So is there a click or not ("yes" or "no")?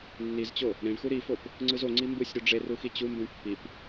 yes